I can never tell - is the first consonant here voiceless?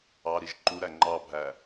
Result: no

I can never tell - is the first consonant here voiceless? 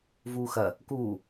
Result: no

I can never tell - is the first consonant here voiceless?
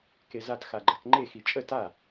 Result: yes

